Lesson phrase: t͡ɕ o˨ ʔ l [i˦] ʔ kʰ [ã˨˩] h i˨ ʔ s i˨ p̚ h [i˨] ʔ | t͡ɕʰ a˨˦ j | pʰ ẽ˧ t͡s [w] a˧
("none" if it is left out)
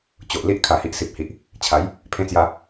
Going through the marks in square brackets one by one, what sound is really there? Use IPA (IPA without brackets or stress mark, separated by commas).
i˦, a˨˩, i˨, j